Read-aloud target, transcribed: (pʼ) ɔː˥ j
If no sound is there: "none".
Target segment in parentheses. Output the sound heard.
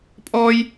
pʼ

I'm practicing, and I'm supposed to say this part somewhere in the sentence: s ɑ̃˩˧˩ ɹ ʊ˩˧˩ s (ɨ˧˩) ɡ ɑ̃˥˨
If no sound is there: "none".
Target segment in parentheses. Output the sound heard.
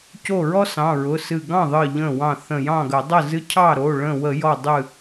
ɨ˧˩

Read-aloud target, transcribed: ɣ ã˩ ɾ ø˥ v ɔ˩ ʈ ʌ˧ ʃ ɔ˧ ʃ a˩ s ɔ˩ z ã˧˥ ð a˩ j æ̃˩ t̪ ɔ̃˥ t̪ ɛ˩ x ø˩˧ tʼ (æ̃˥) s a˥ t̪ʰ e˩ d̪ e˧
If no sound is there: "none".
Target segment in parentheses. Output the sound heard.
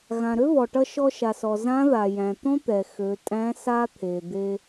æ̃˧˥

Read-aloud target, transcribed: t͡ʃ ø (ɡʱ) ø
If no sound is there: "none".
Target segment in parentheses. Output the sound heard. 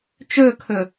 kʰ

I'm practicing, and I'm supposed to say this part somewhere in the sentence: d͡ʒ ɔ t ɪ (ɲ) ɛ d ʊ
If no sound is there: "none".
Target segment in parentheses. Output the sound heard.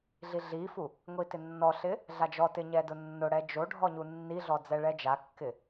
ɲ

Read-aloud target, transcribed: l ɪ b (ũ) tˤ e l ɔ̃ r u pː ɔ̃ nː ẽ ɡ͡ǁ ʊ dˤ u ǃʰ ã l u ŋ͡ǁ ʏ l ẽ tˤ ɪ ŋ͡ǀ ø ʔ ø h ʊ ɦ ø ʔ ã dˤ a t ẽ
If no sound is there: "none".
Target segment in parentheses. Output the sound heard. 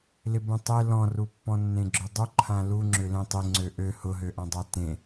ũ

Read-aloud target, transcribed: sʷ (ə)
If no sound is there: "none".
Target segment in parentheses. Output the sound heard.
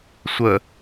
ə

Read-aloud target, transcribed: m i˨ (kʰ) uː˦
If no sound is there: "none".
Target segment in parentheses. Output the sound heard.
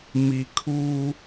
kʰ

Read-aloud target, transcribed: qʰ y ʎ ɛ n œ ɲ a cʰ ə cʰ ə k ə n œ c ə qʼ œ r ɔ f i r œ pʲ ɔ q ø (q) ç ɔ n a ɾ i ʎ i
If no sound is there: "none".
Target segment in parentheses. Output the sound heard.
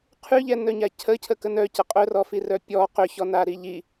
none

